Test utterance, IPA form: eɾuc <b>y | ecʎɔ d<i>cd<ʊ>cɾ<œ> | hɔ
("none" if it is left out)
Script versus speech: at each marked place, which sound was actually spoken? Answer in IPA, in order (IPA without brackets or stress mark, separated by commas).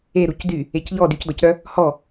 d, y, ɔ, œ